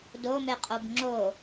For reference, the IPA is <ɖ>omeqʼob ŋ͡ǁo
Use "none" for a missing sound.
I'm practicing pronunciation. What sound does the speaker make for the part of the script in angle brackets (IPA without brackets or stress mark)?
d